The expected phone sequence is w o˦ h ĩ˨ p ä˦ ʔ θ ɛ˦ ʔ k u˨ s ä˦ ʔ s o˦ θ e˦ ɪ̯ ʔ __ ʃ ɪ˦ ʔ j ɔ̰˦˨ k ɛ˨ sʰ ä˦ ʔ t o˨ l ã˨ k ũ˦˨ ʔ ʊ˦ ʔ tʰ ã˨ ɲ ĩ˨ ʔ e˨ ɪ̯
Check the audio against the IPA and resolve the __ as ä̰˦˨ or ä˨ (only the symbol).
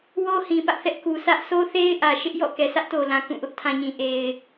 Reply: ä˨